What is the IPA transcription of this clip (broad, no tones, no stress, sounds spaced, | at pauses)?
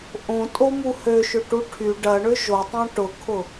ʔ õ tʼ o m u h ø ʃ ʏ ʈ u ʈʰ y ɖ ɐ ɳ ʏ ʒ o tˤ õ ʈ ʊ kʰ ʊ